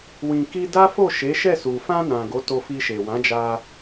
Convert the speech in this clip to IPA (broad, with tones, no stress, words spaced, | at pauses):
wĩ˨ki˧da˦fo˦˨ ʃe˨˦ʃɛ˦˨su˨ fã˧ nã˨ ɡo˨˦to˧fi˧ʃe˨ wã˨˦d͡ʒa˧